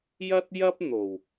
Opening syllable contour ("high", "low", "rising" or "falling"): high